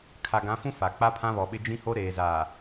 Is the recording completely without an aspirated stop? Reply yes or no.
no